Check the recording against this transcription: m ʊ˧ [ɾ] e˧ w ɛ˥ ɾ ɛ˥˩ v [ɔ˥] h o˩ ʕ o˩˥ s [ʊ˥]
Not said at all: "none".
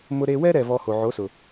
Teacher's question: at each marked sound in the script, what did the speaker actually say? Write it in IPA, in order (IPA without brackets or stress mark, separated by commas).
ɾ, ɔ˧, ʊ˩